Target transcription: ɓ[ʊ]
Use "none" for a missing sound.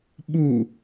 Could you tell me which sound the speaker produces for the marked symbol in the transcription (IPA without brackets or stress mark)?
u